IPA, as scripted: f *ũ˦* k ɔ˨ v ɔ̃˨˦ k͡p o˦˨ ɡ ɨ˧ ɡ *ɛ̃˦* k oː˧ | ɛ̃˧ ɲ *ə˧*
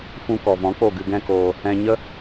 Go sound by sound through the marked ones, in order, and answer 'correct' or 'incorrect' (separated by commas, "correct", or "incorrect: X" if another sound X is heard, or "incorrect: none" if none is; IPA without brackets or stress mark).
correct, correct, incorrect: ə˦